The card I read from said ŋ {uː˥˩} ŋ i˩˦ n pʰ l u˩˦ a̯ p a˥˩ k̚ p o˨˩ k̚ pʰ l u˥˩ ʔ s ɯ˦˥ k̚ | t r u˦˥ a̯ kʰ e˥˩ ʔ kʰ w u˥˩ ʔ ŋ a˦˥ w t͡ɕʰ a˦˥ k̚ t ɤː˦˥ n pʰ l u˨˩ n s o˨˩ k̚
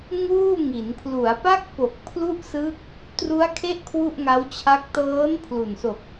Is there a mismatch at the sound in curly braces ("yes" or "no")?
no